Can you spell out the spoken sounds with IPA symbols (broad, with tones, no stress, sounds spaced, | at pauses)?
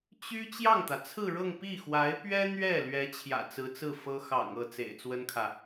t͡ɕ y˥ t͡ɕ j ɑ˥˩ ŋ t̪ ä˩ t͡sʰ ɹ̩˥˧ ɻ ɤ˥˧ ŋ p i˥˩ x w a˧˥ ɪ̯ p ɥ ɛ˥ n̪ ɥ ɛ˥˩ l ɥ ɛ˧˥ t͡ɕʰ j ä̰˨˩ t͡s ɹ̩˧˥ t͡s ɹ̩˥˩ f ɤ˥ x ɑ̰˨˩ ŋ ɤ˥˩ t͡s ḛ˨˩ ɪ̯ t͡s w ə˥ n kʰ ä˨